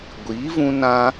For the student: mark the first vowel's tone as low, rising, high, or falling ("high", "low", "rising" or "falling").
rising